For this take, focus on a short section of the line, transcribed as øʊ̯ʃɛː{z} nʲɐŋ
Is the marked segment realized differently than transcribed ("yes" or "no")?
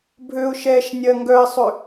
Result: yes